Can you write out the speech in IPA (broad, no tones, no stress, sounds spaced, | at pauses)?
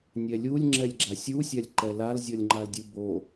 nʲ ɛ lʲ u lʲ ŋ͡ǁ ɛ lʲ ɡ͡ǁ a sʲ u sʲ a lʲ ǃ ɛ l a l zʲ ɔ lʲ ŋ͡ǃ a l dʲ ɯ b o